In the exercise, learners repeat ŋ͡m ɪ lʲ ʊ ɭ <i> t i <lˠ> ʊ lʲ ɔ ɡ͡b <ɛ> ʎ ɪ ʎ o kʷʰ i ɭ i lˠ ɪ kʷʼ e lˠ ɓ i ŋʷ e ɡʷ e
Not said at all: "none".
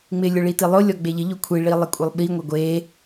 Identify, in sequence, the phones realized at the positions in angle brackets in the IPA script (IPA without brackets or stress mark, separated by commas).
i, lˠ, e